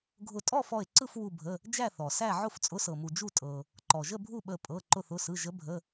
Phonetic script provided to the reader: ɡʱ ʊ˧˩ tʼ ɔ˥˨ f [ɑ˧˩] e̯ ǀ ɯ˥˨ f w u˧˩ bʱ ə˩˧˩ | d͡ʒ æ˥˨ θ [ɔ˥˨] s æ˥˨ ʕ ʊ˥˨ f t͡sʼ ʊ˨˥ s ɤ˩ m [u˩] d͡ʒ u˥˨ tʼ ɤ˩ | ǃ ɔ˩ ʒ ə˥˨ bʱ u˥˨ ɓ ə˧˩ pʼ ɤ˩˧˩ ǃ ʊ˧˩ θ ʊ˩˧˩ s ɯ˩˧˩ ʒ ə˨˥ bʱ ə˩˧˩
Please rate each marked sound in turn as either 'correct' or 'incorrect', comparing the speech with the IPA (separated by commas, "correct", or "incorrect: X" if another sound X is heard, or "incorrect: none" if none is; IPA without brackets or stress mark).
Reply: incorrect: ɔ˧˩, incorrect: ɔ˩, correct